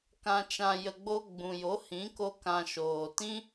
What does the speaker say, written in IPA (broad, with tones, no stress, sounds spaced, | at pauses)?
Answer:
k ã˧ t͡ʃ ã˧ j ə˧ ɡ͡b o˦ ɡ͡b ũ˨ j o˨˦ h ĩ˨˦ k o˦ k ã˧ ʃ oː˨ t ĩ˦